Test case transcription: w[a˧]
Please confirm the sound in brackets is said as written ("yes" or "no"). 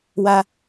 yes